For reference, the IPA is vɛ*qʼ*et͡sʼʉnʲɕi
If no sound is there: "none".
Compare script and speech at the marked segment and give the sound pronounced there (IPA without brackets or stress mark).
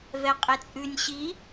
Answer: qʼ